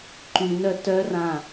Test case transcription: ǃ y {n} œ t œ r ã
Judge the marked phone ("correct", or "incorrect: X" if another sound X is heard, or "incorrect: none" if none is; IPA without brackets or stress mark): correct